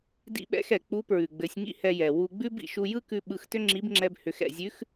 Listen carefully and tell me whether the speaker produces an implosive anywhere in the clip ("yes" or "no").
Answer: yes